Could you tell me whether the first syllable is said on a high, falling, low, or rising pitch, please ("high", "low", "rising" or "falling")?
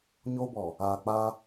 high